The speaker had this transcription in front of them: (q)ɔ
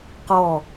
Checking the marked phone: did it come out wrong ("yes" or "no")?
no